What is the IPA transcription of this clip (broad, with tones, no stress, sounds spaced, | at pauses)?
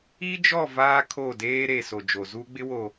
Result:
i˦ d͡ʒ ɔ˦˨ v aː˦ kʰ o˦˨ d eː˦ ɾ e˨ s o˨ d͡ʒ o˨ z uː˦ ɡ͡b ɪ˦ w o˨